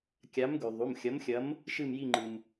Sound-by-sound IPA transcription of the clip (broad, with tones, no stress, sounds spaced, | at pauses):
kʲ a˨˥ m ɡ ʉ˩ ðˤ u˩˧˩ m xʲ ɐ˨˥ m xʲ ɐ˨˥ m | ʃ ɨ˦˨ m j i˦˨ ŋ͡ǃ ɨ˩ m